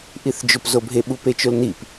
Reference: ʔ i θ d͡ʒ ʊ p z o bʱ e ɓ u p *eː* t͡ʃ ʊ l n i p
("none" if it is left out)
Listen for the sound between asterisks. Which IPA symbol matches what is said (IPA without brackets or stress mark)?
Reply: e